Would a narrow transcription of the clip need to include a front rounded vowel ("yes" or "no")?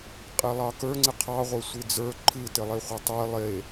no